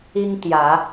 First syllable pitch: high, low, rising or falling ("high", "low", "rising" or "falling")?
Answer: high